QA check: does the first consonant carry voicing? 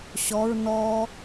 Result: no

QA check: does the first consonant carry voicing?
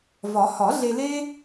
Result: yes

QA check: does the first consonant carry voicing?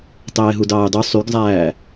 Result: no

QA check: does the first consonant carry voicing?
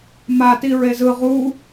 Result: yes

